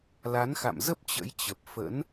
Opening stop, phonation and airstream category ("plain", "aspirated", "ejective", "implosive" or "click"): plain